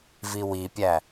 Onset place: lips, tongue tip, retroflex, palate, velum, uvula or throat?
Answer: lips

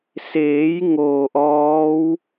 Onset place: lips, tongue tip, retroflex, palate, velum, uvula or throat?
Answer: tongue tip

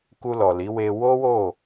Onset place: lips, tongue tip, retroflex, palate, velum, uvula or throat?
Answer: velum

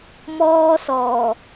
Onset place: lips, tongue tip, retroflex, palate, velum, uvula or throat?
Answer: lips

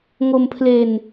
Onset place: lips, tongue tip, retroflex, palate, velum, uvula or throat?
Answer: velum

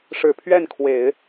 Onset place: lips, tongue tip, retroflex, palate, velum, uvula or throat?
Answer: retroflex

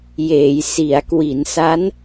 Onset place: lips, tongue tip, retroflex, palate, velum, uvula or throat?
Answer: palate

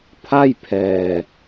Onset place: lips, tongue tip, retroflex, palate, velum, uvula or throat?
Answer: lips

